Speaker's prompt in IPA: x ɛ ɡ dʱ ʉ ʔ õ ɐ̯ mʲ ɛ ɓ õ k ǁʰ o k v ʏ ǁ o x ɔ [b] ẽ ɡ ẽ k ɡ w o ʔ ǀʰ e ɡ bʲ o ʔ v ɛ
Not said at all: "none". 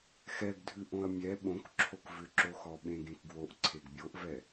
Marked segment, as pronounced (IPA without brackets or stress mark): ɓ